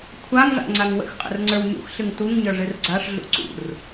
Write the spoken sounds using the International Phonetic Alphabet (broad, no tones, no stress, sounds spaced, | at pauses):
kʷʰ a ŋ ʐ a̰ ŋ͡ǀ a ŋ w ə̰ x qʼ ə̰ r ŋ͡ǀ ə˞ w ɲ ṵ x ɬ ɨ ŋ t u ŋ ɲ ə˞ ʐ ɨ r ɡ͡ǀ a ʂ ɮ ṵ ǀ ṵ r